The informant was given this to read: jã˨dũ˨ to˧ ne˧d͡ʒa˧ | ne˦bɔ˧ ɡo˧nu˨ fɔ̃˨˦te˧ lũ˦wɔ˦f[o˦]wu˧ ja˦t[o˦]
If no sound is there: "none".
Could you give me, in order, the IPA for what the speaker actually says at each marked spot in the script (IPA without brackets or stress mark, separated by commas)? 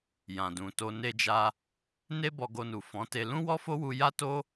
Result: o˦, o˦